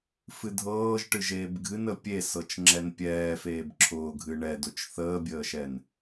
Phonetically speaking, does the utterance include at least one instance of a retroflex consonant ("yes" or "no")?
yes